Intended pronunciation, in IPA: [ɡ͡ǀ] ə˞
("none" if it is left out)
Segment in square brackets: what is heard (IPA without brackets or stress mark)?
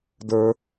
d